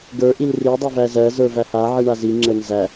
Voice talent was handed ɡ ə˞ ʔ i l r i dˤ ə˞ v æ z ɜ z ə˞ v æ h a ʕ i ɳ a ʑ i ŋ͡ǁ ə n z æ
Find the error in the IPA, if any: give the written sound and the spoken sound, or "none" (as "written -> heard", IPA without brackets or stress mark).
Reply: ʑ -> z